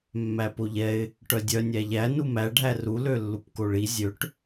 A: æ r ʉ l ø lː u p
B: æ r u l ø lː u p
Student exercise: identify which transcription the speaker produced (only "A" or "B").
B